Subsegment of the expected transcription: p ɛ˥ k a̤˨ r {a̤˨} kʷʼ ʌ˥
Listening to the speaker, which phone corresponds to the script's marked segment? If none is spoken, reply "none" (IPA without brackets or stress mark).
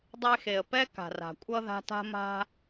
a̤˨